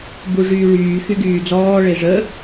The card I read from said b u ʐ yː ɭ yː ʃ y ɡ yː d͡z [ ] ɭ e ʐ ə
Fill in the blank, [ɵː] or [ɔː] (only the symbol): ɔː